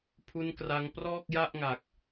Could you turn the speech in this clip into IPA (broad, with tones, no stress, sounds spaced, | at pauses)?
pʰ u˦˥ n k r a˧ ŋ p r ɔː˥˩ k̚ j a˥˩ ʔ ŋ a˨˩ k̚